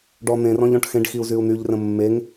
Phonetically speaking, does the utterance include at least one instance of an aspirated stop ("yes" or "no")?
no